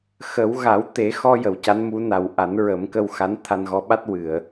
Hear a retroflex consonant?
no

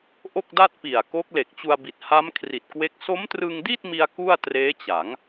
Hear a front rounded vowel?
no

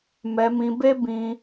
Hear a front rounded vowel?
no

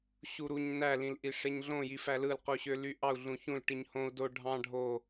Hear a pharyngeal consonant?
no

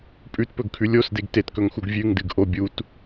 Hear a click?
no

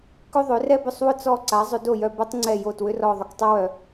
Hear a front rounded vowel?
yes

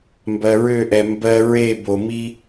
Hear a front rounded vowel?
yes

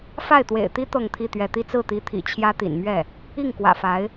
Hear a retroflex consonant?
no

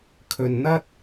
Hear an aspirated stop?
yes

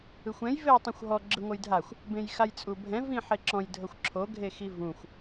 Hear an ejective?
yes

